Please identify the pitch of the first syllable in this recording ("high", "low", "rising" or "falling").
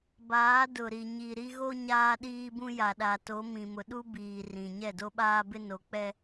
rising